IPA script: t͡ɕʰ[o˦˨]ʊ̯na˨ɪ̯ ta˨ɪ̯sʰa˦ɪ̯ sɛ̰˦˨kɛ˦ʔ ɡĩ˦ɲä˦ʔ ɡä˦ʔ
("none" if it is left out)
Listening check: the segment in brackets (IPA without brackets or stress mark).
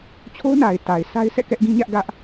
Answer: o˦